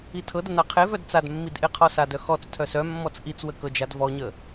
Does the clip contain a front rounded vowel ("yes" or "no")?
yes